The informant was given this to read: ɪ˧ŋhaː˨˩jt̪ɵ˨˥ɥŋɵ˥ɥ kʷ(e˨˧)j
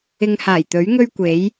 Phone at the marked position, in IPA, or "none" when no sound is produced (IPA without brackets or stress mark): e˨˥